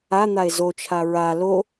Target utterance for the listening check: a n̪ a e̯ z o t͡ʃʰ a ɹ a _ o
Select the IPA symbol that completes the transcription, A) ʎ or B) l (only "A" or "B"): B